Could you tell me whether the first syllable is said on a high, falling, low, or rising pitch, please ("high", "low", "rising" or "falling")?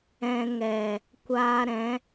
low